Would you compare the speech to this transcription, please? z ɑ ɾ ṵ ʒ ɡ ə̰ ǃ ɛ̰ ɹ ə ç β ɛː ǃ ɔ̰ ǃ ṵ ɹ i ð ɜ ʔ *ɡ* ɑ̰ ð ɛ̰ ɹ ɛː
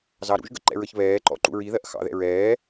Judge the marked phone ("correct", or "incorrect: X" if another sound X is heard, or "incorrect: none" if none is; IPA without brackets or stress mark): incorrect: x